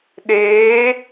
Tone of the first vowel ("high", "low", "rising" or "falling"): rising